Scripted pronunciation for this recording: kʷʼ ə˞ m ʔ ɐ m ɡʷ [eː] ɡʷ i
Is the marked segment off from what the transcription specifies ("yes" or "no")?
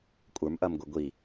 yes